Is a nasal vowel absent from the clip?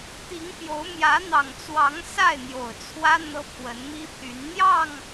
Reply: yes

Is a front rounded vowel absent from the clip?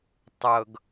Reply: yes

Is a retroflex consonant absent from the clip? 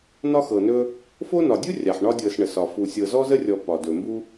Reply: no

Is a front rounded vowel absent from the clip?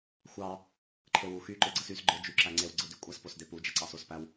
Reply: no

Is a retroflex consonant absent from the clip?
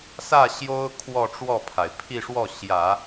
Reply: no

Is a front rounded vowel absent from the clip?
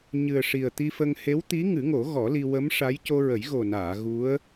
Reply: yes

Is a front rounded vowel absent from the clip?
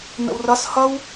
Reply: yes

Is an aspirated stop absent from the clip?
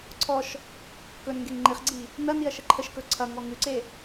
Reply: no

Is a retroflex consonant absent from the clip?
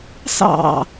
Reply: yes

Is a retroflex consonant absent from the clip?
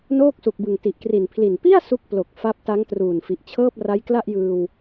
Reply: yes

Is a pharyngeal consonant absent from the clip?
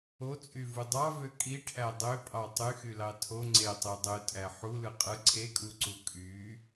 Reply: no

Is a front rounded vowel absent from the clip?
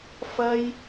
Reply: yes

